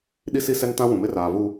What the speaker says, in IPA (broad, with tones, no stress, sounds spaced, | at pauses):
ɗ i˦ s i˦ s ɛ˦ n t ã˦ w ũ˨ m ɪ˦ r aː˨ v u˨